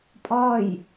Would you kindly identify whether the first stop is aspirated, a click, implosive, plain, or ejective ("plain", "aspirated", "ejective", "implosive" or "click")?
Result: ejective